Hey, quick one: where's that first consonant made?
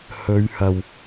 throat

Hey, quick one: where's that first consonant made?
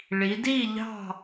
retroflex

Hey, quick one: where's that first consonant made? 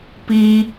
lips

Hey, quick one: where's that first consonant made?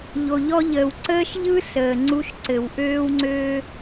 palate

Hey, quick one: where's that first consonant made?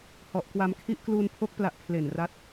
throat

